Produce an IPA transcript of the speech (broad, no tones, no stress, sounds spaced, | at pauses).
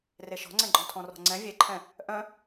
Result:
r e ʃ ɔ̤ ŋ͡ǀ ɛ̃ ɡ͡ǃ ɔ̃ tʰ ɔ̃ r ɔ̤ ŋ͡ǀ ɛ̃ vʲ e ǃʰ ɛ̃ | ʔ œ̃